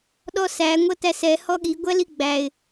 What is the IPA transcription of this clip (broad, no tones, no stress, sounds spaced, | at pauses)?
ɗ ɔ s æ ŋʷ ʌ t æ s ɛ h ɔ ɠ i ɡʷ æ l i ɡ͡b æ ɪ̯